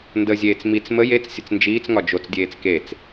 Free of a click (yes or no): yes